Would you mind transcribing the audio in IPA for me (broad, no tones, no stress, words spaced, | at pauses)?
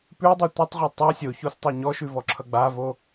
pʉdˤo tʷʌtˤʁʷʌ tˤa sʲoçostˤa ɲɔʃʉvɔǁʰʌ ɡ͡bavo